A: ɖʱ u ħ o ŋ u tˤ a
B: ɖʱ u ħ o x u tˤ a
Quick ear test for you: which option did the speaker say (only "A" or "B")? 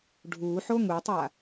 A